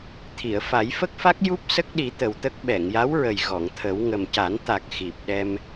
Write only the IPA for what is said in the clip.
t̪ʰi˨˩˨ə̯fa˨˩˦j fə˦˥k̚fa˦˥k̚ju˦˥p̚ sə˦˥k̚ɗi˨˩˦ t̪ə˨˩wt̪ə˦˥k̚ ɓɛ˨˩˨ŋja˧˥wɹə˨˩j ɣɔ˨˩˨ŋt̪ʰə˨˩˦w ŋə˨˩mca˨˩˦n t̪a˨˩k̚ xi˨˩p̚ ɗɛ˧m

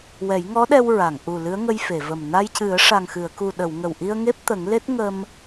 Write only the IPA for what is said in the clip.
wɛ˨˩˦jŋɔ˧˥ ɗɛ˧wɹa˨˩˨ŋʔu˨˩ lɨ˧˥ə̯ŋə˧j fe˨˩˨və˨˩m na˧jcɨ˨˩˦ə̯ ʂa˨˩ŋxɨ˨˩˨ə̯ku˨˩ɗə˨˩˨w ŋə˨˩wʔi˧ə̯ ŋe˦˥p̚t̪ə˨˩˦ŋle˦˥t̚ ŋə˧m

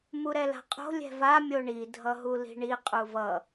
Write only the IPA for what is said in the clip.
muɾɛla̤qʼo̤ lʲɛ̤va mʲoɳi dʱʌɦuli̤ɳi qʼuvʌ

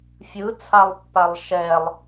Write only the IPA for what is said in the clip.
fʲɯ t͡sʰalˠpːalˠʃɛlˠ

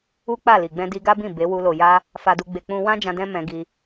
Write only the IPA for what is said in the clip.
u˦k͡pa˦˨li˨ ɡ͡bɛ̃˧di˧ɡa˦bĩ˦˨ be˨˦wu˧ lo˨ja˧ | fa˧du˧ɡ͡be˧ k͡pũ˧wã˦d͡ʒã˧ dɛ̃˦mɛ̃˧ɡi˧

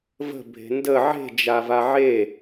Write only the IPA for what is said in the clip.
və̤ bʱe̤ndə ʕe̤ d͡ʒavaʕe

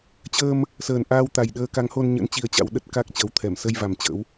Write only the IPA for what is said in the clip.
t͡ɕəː˧m | səː˨˩nʔaː˧w t̪a˨˩jɗəː˧ ka˨˦ŋho˧nɲə̰˧˥n t͡ɕi˧ə̯t͡ɕa̰˧˥wɗə˦˥t̚ ka˦˥k̚t͡ɕəː˨˦wt̪ʰɛ˧˩m sə˧jva˨˩m t͡ɕə̰˧˥w

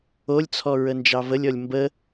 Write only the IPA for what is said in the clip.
olʲt͡sʰɔ ɹənd͡ʒɑvəlʲɔlʲ mbə

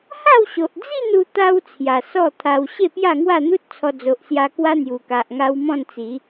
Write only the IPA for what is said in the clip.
ha˥˧w ɕo˨ʔd͡zi˥˧nu˧t̪a˧w t͡sʰja˨˩sɔ˥˧t̪ʰa˧w ɕe˥˧ pja˥˧ŋwa˥˧n̪u˦t̚t͡sʰɔ˧ d͡zo˨ʔsja˧ kwa˦n̪ju˨˩ka˨ʔ ŋa˦wmɔ̃˥˧nt͡si˨˦

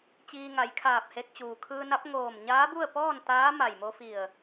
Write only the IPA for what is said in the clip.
t͡ɕiː˧ŋa˩˧jkʰaː˧˩p̚he˧k̚ t͡ɕuː˩kʰɯː˧na˧˥p̚ ŋoː˧˩mɲaː˧˥ bu˥˨ə̯pɔː˥˨nt̪aː˧˥ ma˧˩jmo˧fi˧˩ə̯

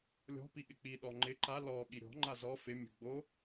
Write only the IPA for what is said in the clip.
lʲɔ̤ piɠɪk͡pi ɗɔŋ͡ǃɪ ǃa lɔ ɠiɾʲɔ̤ ŋ͡ǃazɔ fɪ mʲṳɡ͡bo

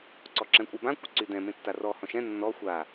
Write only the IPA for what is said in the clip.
ǀɔǁɛ̃kʷʼɛbã kʷɪǀydɛ̃ mẽtːarɔ hɔ̃ʃɛ̃ nːɔ xʷa

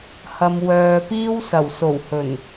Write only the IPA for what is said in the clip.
hɐ˨mwœː˨piː˧w sɐ˨˩wso˨˩w hɵ˨˩n

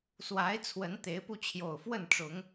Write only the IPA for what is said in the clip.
swa˨˦ɪ̯ t͡sʰwə˨˦nt̪e˨˦ɪ̯pu˧ t͡ɕʰjo˨˩ʊ̯fwə˥˨nʈ͡ʂʊ˨˦ŋ

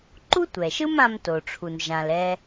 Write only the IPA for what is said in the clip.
ǃu˥tʷɛ˩ʃɯ˥m ã˧mto˩ʈ͡ʂʰu˩n ʒã˩l ɛ˧

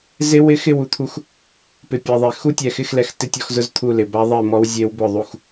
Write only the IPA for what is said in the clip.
zɪ˦˥wɪ˦˥xɪ˥˨w u˥˨t̪ʰu˦˥x | pɪ˨pʲɛ˨ðˤe˨ xu˦˥tʲɛ˨xɪ˥˨xlɛ˨x tɪ˥˨tʲɔ˥˨xzʊ˦˥z t̪ʰu˥˨lɪ˨ ba˦˥ðˤɛ˥˨ mɔ˦˥wzʲe˦˥wbʊ˥˨ðˤu˥˨x

